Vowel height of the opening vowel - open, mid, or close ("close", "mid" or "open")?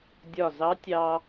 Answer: open